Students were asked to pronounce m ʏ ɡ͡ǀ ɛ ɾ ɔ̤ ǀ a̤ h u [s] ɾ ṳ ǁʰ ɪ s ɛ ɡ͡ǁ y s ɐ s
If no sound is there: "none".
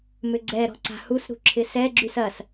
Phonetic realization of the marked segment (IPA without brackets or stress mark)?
s